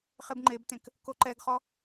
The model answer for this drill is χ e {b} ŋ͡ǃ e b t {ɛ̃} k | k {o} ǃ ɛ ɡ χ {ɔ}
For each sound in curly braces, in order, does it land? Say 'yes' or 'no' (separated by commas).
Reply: yes, no, yes, yes